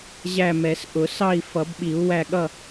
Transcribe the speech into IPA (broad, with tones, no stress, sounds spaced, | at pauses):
ʑ æ˥˨ m ɛ˨˩˦ s ʔ ʊ˨˩˦ s ɑ˥˨ i̯ f ʌ˨˩˦ b ɓ i˨˩˦ u̯ w æ˥˨ ɠ ʌ˥˨